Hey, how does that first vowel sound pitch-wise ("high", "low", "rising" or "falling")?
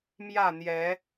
falling